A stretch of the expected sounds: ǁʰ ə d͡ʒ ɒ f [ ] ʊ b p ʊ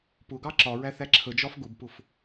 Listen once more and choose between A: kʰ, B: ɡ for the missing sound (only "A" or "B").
B